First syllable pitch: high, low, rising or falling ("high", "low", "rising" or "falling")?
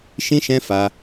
high